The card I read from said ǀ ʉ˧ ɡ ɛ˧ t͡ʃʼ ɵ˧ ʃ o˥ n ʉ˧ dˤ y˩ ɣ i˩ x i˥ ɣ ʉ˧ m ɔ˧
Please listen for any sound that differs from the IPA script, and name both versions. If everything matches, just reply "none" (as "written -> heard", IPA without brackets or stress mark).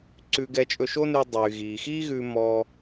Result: none